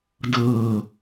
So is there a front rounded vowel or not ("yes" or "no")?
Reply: no